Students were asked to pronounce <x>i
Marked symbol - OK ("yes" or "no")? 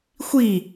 no